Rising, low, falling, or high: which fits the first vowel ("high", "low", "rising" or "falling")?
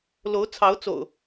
rising